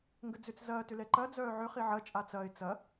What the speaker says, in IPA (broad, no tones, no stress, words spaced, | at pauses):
ŋɡəd͡zʏt͡s zɐː tʏlɛǃɐ d͡zœːʕʏ χiʕɐ t͡ʃʼat͡sɐɪ̯ t͡sɐ